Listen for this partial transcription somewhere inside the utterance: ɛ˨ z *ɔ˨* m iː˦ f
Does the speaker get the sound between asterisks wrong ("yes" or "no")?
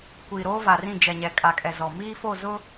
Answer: no